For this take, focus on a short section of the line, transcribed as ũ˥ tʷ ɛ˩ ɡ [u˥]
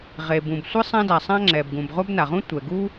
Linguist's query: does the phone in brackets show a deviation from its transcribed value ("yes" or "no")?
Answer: no